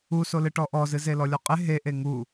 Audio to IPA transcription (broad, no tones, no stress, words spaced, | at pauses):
usolɨ ʈɔʔɔzɨze lɔlʲɔqʼe ɦe ʔeŋu